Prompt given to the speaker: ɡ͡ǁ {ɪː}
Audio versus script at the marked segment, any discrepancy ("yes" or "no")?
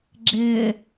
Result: no